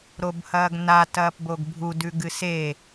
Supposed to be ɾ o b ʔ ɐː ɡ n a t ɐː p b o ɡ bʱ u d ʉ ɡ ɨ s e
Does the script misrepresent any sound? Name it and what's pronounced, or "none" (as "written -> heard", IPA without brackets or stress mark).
ʔ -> h